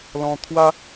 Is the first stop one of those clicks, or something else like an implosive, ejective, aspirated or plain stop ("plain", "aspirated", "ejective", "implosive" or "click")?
aspirated